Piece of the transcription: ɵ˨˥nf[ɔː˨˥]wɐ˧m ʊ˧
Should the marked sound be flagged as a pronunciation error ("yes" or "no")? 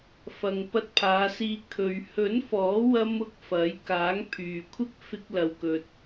no